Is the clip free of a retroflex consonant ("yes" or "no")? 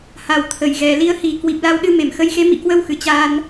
yes